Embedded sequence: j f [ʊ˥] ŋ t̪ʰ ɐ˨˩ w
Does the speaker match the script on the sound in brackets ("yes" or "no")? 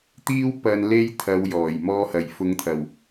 no